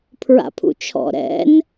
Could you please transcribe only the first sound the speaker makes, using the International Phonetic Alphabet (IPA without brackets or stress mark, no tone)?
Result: pʰ